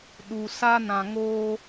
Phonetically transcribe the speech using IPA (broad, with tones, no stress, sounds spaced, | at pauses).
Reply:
ɗ u˨ s a˦ n ã˨ ŋ oː˦